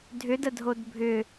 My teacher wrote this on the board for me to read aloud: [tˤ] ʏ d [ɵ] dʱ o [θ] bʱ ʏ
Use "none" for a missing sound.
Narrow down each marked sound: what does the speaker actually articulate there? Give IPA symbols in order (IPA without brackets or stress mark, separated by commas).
dʱ, ə, d